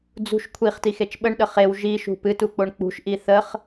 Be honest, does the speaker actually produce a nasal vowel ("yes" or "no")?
no